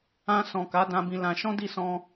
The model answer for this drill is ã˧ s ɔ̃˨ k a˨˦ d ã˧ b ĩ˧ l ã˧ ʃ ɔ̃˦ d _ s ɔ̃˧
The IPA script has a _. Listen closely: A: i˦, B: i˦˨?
B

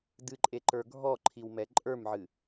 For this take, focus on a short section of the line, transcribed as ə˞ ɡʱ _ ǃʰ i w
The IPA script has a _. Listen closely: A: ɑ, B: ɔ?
B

